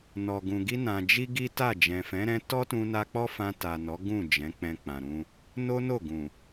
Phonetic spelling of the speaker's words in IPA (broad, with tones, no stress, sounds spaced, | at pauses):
n ɔ˨ ɡ ũ˨ ɡ i˧ n ã˨ d͡ʒ i˧ ɡ i˦ t a˦˨ d͡ʒ ɛ̃˨ f ɛ̃˨˦ ɾ ɛ̃˦ t ɔ˦ t ũ˧ n a˧ k͡p ɔ˦ f ã˧ t a˨ n ɔ˨˦ ɡ ũ˦˨ d͡ʒ ɛ̃˨˦ k͡p ɛ̃˧ k͡p ã˨ ɾ ũ˧ | n o˦ n o˦˨ ɡ ũ˨